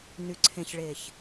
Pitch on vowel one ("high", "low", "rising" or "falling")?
low